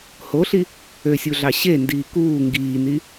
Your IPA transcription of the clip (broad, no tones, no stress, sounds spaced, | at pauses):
h o ɬ i | ø sʲ u ɮ ɑ ɕ e n d iː k uː ŋ ɡ iː n i